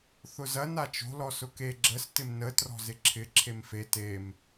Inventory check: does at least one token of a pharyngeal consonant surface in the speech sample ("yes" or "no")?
no